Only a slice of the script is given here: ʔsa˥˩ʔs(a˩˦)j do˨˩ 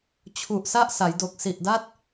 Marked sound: correct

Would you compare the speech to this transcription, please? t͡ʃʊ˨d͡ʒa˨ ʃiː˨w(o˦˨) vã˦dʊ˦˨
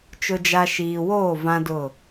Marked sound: incorrect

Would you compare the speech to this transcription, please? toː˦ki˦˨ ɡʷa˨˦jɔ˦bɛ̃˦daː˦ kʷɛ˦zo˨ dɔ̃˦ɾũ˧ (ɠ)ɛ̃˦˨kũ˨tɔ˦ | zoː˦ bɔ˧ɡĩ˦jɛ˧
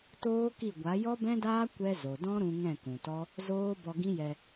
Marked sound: incorrect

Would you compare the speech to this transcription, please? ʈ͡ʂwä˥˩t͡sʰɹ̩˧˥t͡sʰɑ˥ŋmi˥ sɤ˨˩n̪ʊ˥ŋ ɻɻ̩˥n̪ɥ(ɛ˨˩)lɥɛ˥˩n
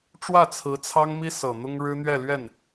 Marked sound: incorrect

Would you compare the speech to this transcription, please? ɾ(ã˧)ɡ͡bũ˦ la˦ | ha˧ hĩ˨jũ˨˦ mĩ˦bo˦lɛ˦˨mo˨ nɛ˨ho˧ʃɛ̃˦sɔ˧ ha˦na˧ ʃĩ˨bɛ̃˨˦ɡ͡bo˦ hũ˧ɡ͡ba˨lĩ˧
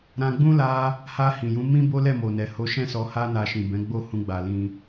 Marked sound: correct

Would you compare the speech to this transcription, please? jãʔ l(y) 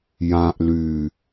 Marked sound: correct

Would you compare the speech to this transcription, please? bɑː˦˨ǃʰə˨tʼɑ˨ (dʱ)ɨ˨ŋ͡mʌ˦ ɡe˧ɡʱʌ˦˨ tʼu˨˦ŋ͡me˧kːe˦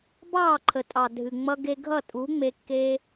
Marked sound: correct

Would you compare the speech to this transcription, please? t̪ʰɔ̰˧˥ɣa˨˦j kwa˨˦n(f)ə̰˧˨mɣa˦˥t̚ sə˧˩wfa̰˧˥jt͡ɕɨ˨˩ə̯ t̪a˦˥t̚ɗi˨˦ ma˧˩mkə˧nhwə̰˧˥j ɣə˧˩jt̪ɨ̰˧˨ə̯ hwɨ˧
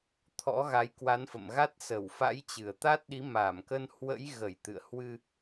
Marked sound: correct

